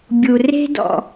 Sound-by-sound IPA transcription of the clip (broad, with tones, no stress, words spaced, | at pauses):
bʲu˨re̤˦dɔ̰˨